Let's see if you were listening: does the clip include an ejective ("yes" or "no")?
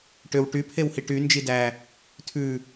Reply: no